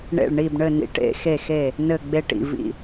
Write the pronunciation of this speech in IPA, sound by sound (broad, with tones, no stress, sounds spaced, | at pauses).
ɳ ḛ˧˩ ɭ ɳ i˧˩ b ɳ ɘ˧˩ n ḭ˧˩˧ ʈ ḛ˧˩˧ x e˧˩ x e˧˩ | n ɘ˧˩ ɡ͡b e˧˩ ʈ ḭ˧˩ v ḭ˧˩